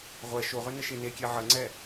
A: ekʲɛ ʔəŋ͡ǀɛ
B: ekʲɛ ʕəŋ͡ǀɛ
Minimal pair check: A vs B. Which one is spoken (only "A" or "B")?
B